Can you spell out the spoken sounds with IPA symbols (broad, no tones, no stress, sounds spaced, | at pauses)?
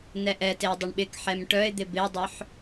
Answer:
n ɛ ʔ ɛ t e dˤ ɪ ɳ ɓ ɪ k ħ ɛ m ʈ œ ɪ̯ d̪ ɪ b ɪ ʊ̯ dˤ œ ħ